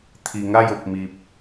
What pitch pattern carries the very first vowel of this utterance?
low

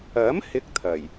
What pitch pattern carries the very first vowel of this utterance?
rising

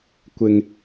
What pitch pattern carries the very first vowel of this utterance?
low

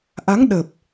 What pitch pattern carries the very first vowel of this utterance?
rising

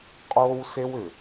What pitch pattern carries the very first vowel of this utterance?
high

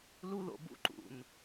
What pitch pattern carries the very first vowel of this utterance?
high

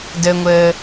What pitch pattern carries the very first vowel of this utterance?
low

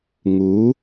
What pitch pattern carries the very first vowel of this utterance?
rising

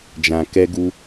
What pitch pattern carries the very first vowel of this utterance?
low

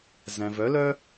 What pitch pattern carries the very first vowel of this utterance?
low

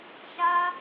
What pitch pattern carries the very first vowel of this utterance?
high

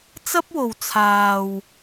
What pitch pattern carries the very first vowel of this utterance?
high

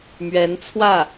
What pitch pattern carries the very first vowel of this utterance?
rising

